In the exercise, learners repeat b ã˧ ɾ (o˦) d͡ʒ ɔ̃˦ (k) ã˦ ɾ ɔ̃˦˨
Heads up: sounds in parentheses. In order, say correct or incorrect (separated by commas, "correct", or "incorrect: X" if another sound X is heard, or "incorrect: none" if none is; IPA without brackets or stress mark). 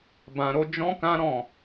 correct, correct